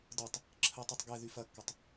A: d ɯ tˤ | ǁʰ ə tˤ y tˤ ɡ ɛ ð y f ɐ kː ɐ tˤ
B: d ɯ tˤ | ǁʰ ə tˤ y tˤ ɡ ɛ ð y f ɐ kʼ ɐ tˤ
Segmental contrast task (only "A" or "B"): A